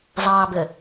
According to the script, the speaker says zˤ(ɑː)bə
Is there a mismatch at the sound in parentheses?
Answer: no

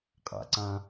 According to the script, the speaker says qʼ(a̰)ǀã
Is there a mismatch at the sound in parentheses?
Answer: no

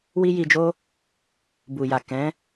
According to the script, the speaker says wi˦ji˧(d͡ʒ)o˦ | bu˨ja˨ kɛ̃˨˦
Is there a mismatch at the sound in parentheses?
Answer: no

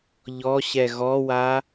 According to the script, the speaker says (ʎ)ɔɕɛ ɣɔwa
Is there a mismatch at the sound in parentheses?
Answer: no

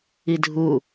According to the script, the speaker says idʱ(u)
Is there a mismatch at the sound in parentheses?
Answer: no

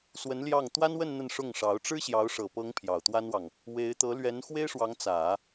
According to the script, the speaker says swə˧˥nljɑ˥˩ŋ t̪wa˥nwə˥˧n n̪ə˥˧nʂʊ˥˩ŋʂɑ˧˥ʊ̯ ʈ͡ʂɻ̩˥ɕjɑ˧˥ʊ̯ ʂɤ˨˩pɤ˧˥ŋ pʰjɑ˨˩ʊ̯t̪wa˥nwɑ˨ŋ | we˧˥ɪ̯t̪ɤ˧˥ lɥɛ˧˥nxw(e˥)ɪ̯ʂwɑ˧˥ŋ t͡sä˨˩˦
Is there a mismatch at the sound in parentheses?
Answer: no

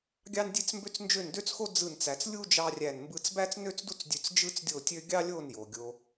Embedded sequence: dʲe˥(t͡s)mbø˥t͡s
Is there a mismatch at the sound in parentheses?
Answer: no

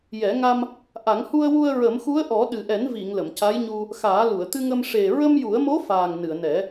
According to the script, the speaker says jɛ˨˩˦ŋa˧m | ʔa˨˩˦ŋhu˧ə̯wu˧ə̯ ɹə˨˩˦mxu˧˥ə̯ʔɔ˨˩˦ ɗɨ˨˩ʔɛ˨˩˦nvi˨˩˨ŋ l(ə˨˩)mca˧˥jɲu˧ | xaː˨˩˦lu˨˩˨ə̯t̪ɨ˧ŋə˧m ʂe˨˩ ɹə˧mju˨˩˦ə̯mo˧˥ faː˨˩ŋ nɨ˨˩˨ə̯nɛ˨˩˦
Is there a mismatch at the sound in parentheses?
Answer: yes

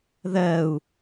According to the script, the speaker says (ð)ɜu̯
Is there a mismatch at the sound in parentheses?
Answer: no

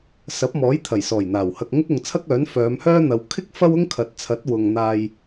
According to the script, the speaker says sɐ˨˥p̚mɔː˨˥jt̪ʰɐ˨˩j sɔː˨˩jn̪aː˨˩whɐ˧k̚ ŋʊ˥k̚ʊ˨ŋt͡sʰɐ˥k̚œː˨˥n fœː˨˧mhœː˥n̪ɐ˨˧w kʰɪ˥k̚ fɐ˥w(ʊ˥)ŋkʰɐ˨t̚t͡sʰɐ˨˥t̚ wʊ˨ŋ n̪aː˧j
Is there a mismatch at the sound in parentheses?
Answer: no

